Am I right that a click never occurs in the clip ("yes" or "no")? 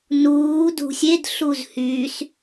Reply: yes